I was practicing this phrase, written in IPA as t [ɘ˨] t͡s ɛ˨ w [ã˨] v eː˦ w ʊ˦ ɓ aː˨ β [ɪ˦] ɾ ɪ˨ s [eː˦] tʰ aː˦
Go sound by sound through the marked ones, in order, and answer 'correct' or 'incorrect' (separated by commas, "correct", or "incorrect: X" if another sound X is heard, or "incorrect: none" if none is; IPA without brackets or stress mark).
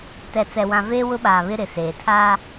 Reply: incorrect: ɛ˨, correct, correct, incorrect: eː˨